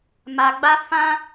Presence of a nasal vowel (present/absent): present